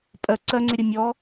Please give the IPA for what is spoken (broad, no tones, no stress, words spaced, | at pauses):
pʼɜ ǀɜŋ͡ǀɪɾʲə mʲɔ